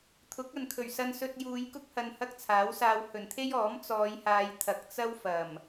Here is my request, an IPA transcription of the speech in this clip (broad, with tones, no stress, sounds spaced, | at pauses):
t̪ʰ ʊ˨˥ k̚ ɐ˨ n kʰ ɵ˨˩ ɥ s ɐ˧ n s ɵ˧ t̚ j uː˨˧ j k ʊ˥ k̚ h ɐ˧ n h ɐ˥ k̚ t͡sʰ aː˨˥ w s aː˧ w h ɵ˨˩ n t̪ʰ e˥ j ɔː˨˥ m t͡s ɔː˨˧ j h aː˨˧ j t̪ʰ ɐ˨ k̚ t͡s ɐ˥ w f ɐ˨˩ m